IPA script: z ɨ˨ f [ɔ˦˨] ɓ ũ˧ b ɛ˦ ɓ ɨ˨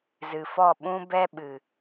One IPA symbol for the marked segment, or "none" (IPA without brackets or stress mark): ɔ˦˨